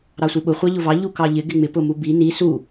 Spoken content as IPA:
ɾ ɑ sʷ i ɓ ʊ χʷ ɑ ʎ ʊ v ɑ ʎ u k ɑ ʎ ɪ ɡ ɪ ŋ͡m ɪ p ʊ m u b i n i s u

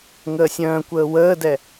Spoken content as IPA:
ŋ əː sʲ œ̃ː kʷ əː w əː d ɛ

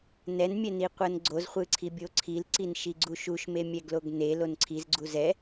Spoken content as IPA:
n ɛ n mʲ ɛ n i qʷ ɤ n ɡ͡ǀ o z χʷ ɯ ǀʰ i bʲ o ǀʰ i l ǀ i n ʃ i ɡ͡ǀ u ʃ u ʃ m e mʲ ɛ ɡ l o ɡ n e l o n ǀʰ i z ɡ͡ǀ u z ɛ

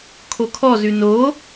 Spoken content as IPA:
kʰ o kʰ ɔ z ʉ n o

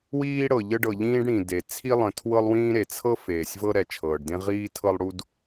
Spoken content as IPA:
w iː˥ ɽ ɤ˩ ʎ ə˥ ɖ ɤ˩ ʎ ĩː˥ ɖ ɽ ĩ˩ d e˩ t͡sʰ i˥ lˠ ə̃˩ tʰ w ɤ˥ lˠ w ĩː˥ ɾ e˩ t͡sʰ ɤ˥ f eː˩ sʲ v ɤ˥ ɾ ɛ˩ t͡ʃʰ ɤː˩ ɖ d ẽ˥ ʁ iː˥ tʰ ɤ˥ lˠ ɽ u˥ d

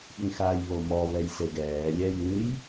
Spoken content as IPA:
ɓ ĩ x aː j β o m ɔ β ɛ j s e ɡ ɛː lʲ ɛ j ɨ j

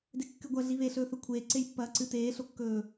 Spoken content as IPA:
d e kː ɨ ɡʷ ɐ ɮ i β e ɬ ɵː θ ɵ kʷʰ eː ǀ e j pː ɐː ǀ ɨ t eː ɬ o kː ɵː

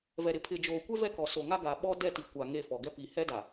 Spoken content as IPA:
v ɛ˨ ɾ ɪ˨ pʰ ɪ˨ d͡ʒ oː˨ kʷ ɛ˦ v ɛ˦ k ɔ˨ s o˨ ŋ a˦ ɡ a˨ ɓ ɔ˦ d ɛ˦˨ t i˨ kʷ a˨ ŋ e˦˨ f ɔ˨ ɡ ɛ˦ p i˨ h ɛ˦ d a˨

